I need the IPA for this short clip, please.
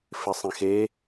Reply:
f ɪ sˤ ĩ x e

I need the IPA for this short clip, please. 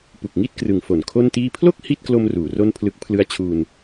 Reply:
p u˨˩ k̚ ŋ i˥˩ t̚ k r ɯ˩˦ ŋ f o˨˩ n kʰ o˥˩ n t iː˥˩ pʰ l o˥˩ k̚ h i˥˩ t̚ k l o˧ m r uː˩˦ r o˥˩ n pʰ l ɯ˦˥ k̚ pʰ l ɯ˦˥ a̯ t͡ɕʰ uː˧ n

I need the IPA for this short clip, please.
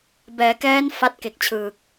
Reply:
b ɛː˩˦ k ɛː˦˥ n f a˦˥ t̚ k e˨˩ k̚ t͡ɕʰ ɯː˨˩ k̚

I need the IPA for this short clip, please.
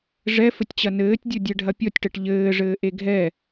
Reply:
ʐ ɛ f ɘ tʲ t͡ɕ ɐ n ɘː tʲ dʲ o dʲ ɛ ɖʱ ɐ pʲ ɔ tʲ ʈ ɛ ʈ ʎ ɘː ʐ ɘː ʔ e ɡʱ ɛ

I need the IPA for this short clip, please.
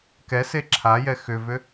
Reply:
k ɛ s e ǁʰ a j ɛ x ʏ v ʏ

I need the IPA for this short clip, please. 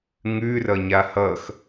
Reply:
ŋ ʉ r ʌ ɲ a h ʌ x

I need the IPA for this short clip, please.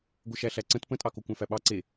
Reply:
ɡʷ ə ʃ æ ɬ æ ǀ ə̃ t p ə̃ tʼ ɑ k o kʷ æ̃ f æ ɓ ɑ ǀ e

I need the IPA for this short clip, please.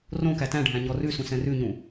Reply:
r õ k æ t æ̃ ɖʱ æ̃ ɲ ɔ r ʉ s ũ s ɛ̃ r ʉ ɲ ũ

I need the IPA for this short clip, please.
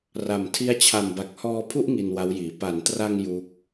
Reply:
r a˨˩ m tʰ i˦˥ a̯ t͡ɕʰ a˨˩ m b a˨˩ k̚ h ɔː˧ pʰ u˥˩ ʔ ŋ i˧ n w a˦˥ w j iː˩˦ p a˩˦ n t r a˧ ŋ j u˦˥ k̚

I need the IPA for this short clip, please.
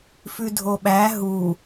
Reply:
f ʉ dʱ o ɓ æ ɦ u

